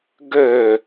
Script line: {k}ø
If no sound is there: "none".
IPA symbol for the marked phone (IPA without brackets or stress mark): ɡ